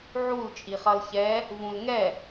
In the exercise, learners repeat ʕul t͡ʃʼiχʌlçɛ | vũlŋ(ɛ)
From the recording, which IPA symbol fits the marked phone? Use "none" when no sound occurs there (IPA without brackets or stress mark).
ɛ